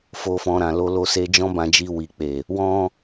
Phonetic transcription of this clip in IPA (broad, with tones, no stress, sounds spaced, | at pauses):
f o˧ f ɔ̃˧ ɾ ã˨ l o˧ l o˧ s e˧ d͡ʒ ɔ̃˦ b ã˧ d͡ʒ i˧ w i˨ k͡p e˨ | w ɔ̃˦